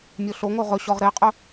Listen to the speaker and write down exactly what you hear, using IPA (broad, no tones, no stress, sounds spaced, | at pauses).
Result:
mʲ o ɬ o ŋ o ʁ ɵ ɕ ɔ ʁ ɾ e qʼ ɵ